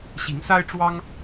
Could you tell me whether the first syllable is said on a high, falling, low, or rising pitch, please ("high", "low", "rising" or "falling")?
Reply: rising